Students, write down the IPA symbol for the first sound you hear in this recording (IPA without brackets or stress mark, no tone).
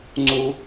ŋ͡ǀ